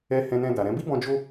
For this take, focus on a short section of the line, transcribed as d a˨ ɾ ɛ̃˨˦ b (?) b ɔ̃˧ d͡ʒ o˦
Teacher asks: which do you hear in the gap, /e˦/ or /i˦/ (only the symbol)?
i˦